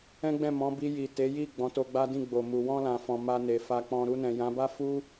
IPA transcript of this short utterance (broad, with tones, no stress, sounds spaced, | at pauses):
ɛ̃˦ ɡ͡b ɛ̃˦˨ m ɔ̃˨˦ b i˧ j i˨ t e˨˦ j i˦˨ ɡ͡b ɔ̃˨˦ t o˧ ɡ͡b a˦ d ĩ˦˨ ɡ͡b o˨ m u˨ w ɔ̃˧ l ã˨ f ɔ̃˨ m a˧ n e˨ f a˧ k͡p ɔ̃˧ ɾ u˧ n ɛ̃˨ j ã˨˦ b a˦ f u˦